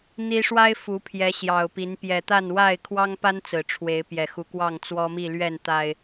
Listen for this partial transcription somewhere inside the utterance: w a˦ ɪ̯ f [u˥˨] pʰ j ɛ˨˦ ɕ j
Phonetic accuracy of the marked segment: incorrect: u˨˦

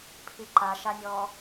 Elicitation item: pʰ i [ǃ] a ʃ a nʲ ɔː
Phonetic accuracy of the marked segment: correct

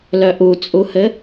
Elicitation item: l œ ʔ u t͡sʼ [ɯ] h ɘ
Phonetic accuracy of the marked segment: incorrect: u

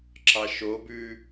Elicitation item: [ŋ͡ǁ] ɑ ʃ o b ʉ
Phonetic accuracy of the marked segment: incorrect: ǁ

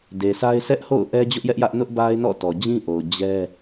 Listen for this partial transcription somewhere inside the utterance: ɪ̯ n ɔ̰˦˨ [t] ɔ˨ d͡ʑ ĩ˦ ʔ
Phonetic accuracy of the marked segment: correct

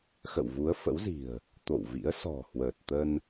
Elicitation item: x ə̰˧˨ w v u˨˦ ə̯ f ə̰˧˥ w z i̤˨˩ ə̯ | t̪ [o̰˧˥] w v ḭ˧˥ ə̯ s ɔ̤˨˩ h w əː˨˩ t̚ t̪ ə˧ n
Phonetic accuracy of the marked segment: incorrect: o̰˧˨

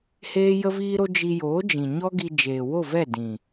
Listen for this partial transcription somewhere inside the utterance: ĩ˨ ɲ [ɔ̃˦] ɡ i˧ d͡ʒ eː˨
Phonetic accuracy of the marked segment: incorrect: ɔ˦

